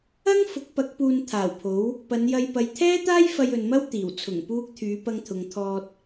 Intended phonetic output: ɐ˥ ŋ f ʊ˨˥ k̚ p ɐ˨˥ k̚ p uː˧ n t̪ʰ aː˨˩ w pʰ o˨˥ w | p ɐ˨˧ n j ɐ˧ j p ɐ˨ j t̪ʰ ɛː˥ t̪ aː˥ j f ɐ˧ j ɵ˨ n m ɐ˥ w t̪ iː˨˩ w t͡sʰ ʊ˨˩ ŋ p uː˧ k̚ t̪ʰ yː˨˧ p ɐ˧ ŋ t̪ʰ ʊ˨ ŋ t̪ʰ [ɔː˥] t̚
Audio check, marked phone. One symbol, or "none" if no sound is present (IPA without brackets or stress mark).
ɔː˧